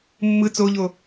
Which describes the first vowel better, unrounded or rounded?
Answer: unrounded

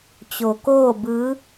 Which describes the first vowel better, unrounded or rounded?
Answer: rounded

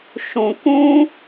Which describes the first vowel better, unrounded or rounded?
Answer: rounded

